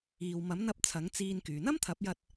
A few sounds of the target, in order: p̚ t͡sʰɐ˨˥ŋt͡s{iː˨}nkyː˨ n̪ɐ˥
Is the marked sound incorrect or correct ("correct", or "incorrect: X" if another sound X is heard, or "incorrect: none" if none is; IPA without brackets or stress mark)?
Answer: incorrect: iː˧